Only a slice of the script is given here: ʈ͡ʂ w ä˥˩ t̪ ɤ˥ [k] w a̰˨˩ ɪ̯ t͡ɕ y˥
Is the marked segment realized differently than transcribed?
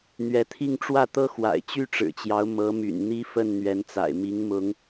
yes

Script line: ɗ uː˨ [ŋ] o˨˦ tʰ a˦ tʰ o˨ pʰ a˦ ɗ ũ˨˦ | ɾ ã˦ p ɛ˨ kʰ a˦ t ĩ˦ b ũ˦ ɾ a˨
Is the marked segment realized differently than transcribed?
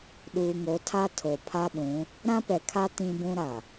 no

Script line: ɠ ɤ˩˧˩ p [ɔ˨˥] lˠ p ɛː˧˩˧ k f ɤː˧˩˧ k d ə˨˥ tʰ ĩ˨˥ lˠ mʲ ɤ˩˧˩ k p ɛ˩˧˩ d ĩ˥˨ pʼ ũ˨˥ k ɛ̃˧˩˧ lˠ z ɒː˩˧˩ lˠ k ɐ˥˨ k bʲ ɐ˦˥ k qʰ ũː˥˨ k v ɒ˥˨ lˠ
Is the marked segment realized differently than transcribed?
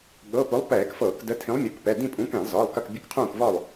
yes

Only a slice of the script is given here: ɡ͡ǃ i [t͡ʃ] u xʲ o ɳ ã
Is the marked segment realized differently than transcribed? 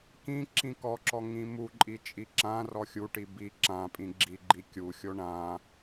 yes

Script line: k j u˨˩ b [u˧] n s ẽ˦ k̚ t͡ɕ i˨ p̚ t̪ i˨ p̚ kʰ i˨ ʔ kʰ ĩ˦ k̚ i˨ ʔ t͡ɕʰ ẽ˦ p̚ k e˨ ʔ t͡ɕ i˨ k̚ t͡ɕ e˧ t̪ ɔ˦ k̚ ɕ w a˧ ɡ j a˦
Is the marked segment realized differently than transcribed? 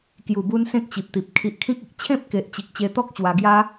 no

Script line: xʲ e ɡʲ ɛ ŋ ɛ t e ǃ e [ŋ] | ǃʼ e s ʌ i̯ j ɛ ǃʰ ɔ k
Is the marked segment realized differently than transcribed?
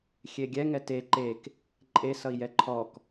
yes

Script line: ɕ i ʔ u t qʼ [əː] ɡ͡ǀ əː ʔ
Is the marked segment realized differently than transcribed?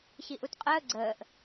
no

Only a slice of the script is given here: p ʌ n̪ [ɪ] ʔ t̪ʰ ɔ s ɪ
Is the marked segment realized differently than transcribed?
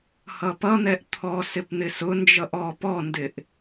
yes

